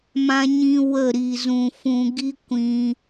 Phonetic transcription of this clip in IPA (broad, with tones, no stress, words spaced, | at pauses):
mã˦ɲĩ˦ wə˦˨ ɾi˨zũ˨ fũ˧ɡi˦ kʷĩ˧